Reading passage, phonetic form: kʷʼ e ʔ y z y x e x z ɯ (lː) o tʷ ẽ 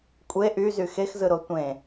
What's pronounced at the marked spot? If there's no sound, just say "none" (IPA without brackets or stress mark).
ɾ